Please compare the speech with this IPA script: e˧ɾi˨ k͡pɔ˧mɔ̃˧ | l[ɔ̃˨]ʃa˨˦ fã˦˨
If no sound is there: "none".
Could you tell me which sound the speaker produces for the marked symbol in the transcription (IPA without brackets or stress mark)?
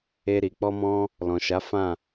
ɔ̃˨